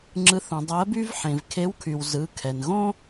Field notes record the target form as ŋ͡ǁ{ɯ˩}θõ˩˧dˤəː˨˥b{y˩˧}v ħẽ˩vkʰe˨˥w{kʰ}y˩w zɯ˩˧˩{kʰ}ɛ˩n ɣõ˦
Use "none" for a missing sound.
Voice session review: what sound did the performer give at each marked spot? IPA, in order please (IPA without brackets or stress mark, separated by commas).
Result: ɯ˨˥, y˦, kʰ, kʰ